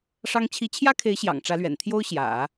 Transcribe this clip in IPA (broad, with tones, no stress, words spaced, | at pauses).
ʂɑ˥ŋ t͡ɕʰi˧˥t͡ɕʰjä˥kʰe˧˥ɪ̯ɕjɑ̰˨˩ŋ ʈ͡ʂä˧˥lɥɛ̰˨˩n t̪ʰjo˥ʊ̯ɕjä̰˨˩˦